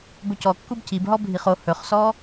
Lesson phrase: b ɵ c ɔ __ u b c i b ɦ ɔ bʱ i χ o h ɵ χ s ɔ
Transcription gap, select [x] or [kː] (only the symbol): kː